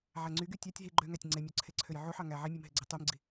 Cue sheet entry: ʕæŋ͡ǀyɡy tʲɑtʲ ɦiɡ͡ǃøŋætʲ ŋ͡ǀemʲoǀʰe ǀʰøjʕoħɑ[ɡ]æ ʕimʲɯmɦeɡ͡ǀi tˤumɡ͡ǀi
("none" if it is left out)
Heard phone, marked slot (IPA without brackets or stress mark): ŋ